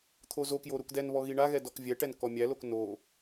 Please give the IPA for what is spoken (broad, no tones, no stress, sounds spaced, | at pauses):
t̪ʰ o z o k j o ɾ u k d ɛ n β ɔ ɣ i ɳ a ɣ ɛ d ɔ k vʲ ɛ ʈ ɛ n k ɔ mʲ æ l o k n o